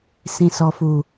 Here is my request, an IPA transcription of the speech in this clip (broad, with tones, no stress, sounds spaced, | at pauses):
s ĩ˨ s ɔ˨ f u˨